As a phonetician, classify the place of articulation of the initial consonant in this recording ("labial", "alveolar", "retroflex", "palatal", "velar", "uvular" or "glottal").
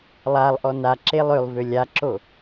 alveolar